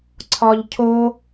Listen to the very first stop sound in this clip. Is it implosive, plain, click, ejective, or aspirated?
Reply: click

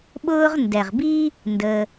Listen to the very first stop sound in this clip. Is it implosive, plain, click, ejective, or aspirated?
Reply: implosive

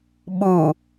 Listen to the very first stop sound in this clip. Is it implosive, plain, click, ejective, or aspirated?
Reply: implosive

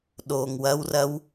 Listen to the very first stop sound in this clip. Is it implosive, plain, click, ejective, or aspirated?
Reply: implosive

